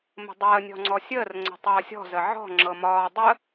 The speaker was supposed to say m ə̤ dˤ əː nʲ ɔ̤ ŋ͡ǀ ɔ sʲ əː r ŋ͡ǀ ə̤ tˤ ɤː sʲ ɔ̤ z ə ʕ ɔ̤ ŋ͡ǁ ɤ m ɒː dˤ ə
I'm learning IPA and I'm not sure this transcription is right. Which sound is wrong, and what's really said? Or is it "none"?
none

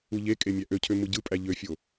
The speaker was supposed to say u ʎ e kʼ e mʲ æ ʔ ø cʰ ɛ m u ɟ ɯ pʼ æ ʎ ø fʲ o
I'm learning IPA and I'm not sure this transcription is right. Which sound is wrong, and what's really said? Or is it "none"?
ɛ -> ø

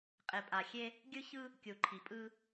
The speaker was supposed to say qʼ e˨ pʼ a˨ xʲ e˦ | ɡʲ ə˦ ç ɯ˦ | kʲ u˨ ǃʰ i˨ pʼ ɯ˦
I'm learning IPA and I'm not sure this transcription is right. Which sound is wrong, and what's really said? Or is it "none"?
ə˦ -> ɯ˦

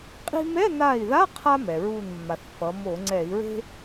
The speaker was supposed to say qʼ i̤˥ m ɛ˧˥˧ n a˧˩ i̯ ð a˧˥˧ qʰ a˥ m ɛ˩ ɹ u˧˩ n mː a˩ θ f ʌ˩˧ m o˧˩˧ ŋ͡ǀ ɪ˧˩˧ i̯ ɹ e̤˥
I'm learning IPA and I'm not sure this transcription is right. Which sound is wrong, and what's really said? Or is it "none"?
ɪ˧˩˧ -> ɛ˧˩˧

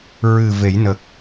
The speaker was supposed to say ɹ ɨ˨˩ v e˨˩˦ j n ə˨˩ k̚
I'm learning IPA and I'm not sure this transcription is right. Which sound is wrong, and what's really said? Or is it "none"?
none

